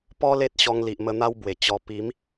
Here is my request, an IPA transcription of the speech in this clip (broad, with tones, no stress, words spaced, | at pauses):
pɔ˦ le˦t̚ɕɔ˧ŋli˨ʔmə˧ n̪a˦wbwe˨˩t͡ɕɔ˧ pi˨˦m